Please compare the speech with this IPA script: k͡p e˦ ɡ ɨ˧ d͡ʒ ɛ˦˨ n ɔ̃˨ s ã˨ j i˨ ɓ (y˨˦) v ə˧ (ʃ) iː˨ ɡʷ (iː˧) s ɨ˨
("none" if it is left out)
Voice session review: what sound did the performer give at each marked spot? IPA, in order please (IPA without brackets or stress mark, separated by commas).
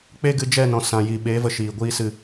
e˨˦, ʃ, iː˧